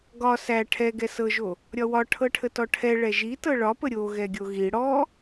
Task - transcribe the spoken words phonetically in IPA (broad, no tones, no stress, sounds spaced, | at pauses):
ɡ ɒ s æ ʈʰ ɛ ɡ ɛ s ɤ ʒ o | ɾʲ ɒ w ɒ ʈʰ ɤ ʈʰ ə t ɔ ʈʰ ɛ ɭ ɛ ʒ i t ɤ ɭ ɒ p ə ɾʲ o ɣ ɛ ɡʲ o ɣ i ɽ ɔ